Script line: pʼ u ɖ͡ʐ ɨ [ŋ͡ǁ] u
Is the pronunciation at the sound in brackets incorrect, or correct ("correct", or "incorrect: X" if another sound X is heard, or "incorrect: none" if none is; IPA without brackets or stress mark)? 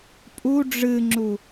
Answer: correct